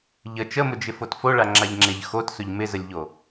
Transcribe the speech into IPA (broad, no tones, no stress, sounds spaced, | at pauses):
ʎ ə t͡ʃ ə m ʊ d͡ʒ ɪ f o t f o ɭ a ŋ͡ǁ a ʎ ŋ͡ǁ e ʎ x o t s ʊ ʎ m ɪ z ə lʲ ʎ o